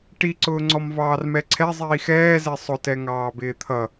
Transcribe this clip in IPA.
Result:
ʈ i ǀ ʊː ŋ͡ǀ ɔ m v ɑː r m ɛ ǀʰ ɛ zˤ iː x ɛː z ɛ sˤ ʊ t ɛ ŋ ɑː b ɪː t̪ʰ ʌ

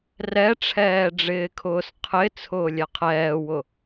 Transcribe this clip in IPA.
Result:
r ɛ ʈ͡ʂʰ ɛː ɖ͡ʐ ɪː kʰ ʊː s qʰ ɪ t͡sʰ ʊː lʲ ɛ qʰ ɛː w ʊ

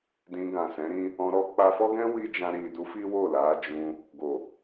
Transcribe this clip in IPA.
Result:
d ĩ˧ ɡ ã˨ s ɛ̃˨˦ ɾ ĩ˦ | ɔ̃˧ ɾ ɔ˦ k͡p a˧ f ɔ˦ ɡ ɛ̃˦ w i˦ d͡ʒ ã˧ ɾ i˨ d u˨˦ f i˦ w o˦˨ l a˨˦ d͡ʒ ũ˧ | ɡ o˨

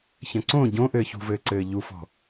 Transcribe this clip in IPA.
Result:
ç ɐ̃ ǀ õ ɟ õ ʔ ɘː ç ṳ v ɘː ǀ ɘː ʎ u f ɔ̤

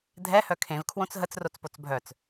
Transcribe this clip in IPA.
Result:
dʱ ɛ h œ kʰ ẽ v kʰ w õ t͡s ɦ ə t͡s r o t͡s p o t͡s bʱ œ t͡s

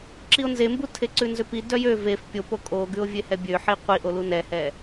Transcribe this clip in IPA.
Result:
ǁ i o̯ n z e m b u tʰ e ǀ ʉ n z ø p i d œ j ø v e f pʲ o p o kʼ o ɡ ʉ o̯ vʲ e h ɛ bʲ ø ħ i qʷ i ʔ o l u n ɛ h ɛ

